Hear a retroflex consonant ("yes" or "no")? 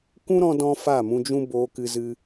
no